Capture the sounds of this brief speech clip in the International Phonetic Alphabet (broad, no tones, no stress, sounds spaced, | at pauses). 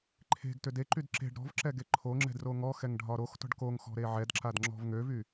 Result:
ǃʰ e̤ ɡ t ʏ d e ǃ y d ǁ e̤ ɖ ɾ ɔ̤ v ǁ ɛ ɡ e ǃʰ o ŋ͡ǁ ɛ̤ d r o ŋ ɔ x ɛ ŋ ɖʱ ɒ ɾ o x t ɔ̤ ɖ k o ŋ x ɔ̤ ɾ e ʕ ɛ d ǁ a d ŋ͡ǁ ɔ̤ v ŋ ø v y